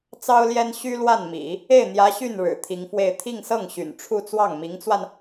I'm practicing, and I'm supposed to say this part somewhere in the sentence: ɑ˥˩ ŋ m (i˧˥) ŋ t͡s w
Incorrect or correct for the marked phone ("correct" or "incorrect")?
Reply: correct